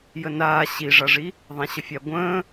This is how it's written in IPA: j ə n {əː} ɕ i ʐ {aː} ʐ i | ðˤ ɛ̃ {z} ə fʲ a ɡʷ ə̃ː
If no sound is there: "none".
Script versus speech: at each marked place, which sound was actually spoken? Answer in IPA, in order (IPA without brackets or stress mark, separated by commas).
aː, a, ɕ